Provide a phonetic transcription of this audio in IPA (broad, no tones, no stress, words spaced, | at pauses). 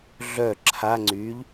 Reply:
ɮœ ǁʰa ŋ͡ǀyʎ